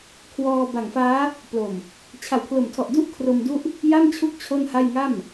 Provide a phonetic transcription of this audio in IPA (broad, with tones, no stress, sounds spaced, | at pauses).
kʰ w ɔː˧ b a˨˩ ŋ f aː˦˥ | p l o˨˩ m | t͡ɕʰ a˩˦ w pʰ l o˨˩ m tʰ ɔ˨˩ ʔ d u˥˩ ʔ kʰ r o˧ m d u˥˩ ʔ | j a˥˩ m t͡ɕʰ u˦˥ k̚ t͡ɕʰ o˥˩ n h a˥˩ j ŋ a˥˩ m